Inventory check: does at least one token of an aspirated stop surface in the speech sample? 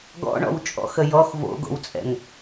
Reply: no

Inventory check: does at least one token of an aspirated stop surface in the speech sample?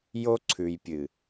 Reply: yes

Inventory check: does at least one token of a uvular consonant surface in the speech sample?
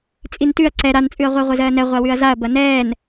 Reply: yes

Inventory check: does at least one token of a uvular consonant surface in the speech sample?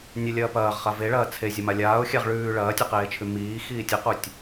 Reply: yes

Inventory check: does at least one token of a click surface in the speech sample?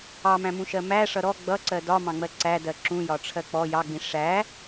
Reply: yes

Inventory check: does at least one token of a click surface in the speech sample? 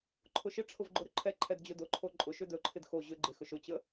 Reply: yes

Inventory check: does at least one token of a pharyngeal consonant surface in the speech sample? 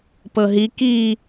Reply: no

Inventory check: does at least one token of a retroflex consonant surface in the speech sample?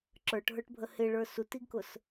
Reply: yes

